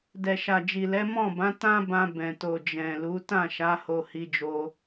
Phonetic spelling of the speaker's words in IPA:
d ɛ˨ ʃ a˨ d͡ʒ i˨ l ɛ˨˦ m ɔ̃˦˨ b ã˨˦ t ã˦ b ã˧ b ɛ̃˨ t o˨ d͡ʒ ɛ̃˨ l u˨˦ t ã˦˨ ʃ a˨˦ h o˧ h i˧ d͡ʒ o˧

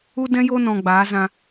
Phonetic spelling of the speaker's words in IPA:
u˦ d ɛ̃˦ j o˦ n ɔ̃˧ ɡ͡b aː˨˦ z ã˧

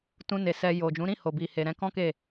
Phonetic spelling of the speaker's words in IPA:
t ũ˧ n e˨ s ɛ˧ j o˨ d͡ʒ ũ˨˦ ɾ ĩ˦˨ h o˨ b i˨ h e˨ ɾ ɛ̃˧ k ɔ̃˦ k e˦˨

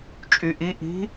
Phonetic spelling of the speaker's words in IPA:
t͡ʃʼ y ʔ i ʔ i̤

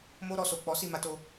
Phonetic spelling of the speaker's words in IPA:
m o˦ ɾ ɔ˧ s o˨ k͡p ɔ˨˦ s i˦˨ m a˧ t o˧

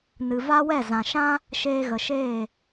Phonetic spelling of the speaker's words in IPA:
n ɨ˨ v a˦ w ɛ˦˨ z ã˨ ʃ ã˦ | ʃ eː˧ ɣ ə˨ ʃ eː˦˨

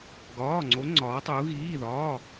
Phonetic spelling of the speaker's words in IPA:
ɡ ɒː˧˥˧ ŋ͡ǀ o˧˥ ŋ͡ǀ ɒː˧˥ tˤ u˧˥ ɣ iː˧˥˧ ð ɒː˧˥˧

